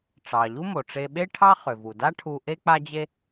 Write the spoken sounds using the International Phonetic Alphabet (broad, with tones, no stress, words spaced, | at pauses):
ʈ͡ʂɑ˩ʎu˥mo˩ʈ͡ʂe˧ ɓe˥ʈʰɑ˥ χʏ˩vu˩da˥ ʈʰu˧ʔe˥k͡pa˥d͡ʑe˥